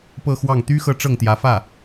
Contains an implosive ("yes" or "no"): no